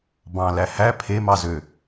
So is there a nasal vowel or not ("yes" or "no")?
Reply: yes